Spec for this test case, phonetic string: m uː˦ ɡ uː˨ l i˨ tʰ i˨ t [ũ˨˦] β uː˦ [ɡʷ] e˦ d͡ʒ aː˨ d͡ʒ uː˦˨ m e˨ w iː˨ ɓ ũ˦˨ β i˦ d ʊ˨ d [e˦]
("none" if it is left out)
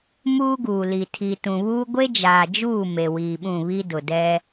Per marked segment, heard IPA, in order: ũ˨, ɡʷ, ɛ˦

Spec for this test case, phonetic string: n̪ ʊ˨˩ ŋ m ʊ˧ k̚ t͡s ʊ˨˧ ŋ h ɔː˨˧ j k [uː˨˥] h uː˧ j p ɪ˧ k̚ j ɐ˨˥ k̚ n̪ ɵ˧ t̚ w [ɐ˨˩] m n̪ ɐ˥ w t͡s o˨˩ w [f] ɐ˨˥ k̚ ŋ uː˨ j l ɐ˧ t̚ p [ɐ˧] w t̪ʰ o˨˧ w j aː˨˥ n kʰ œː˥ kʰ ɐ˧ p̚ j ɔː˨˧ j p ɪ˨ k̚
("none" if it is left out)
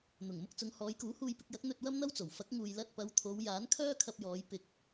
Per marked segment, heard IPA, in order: uː˨˥, ɐ˥, f, ɐ˨˧

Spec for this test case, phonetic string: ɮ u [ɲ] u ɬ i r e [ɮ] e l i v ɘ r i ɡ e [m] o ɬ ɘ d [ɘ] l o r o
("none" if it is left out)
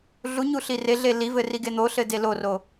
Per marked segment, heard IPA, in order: ɲ, ɮ, n̪, e

